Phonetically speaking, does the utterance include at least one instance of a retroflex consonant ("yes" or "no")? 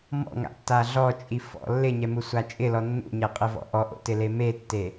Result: no